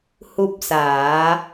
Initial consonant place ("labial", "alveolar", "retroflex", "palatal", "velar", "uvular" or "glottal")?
glottal